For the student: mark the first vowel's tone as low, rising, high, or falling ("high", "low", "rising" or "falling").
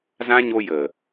high